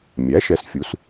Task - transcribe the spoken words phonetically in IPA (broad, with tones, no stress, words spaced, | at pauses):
mʲæ˩˥ʃɛ˩˥sfʲu˩˥s